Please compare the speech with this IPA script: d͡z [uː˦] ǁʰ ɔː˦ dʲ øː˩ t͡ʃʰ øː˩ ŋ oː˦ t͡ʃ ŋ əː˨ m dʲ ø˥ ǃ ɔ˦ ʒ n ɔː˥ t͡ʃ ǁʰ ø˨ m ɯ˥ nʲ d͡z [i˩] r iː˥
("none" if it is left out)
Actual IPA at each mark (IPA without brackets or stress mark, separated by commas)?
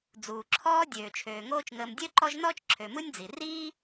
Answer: uː˩, i˩